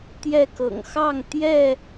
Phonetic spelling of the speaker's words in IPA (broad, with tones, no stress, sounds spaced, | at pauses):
t̪ j ɛ˥˨ k ɤ̰˨˩ ŋ x ɑ˥˨ ŋ t̪ j ɛ˥˨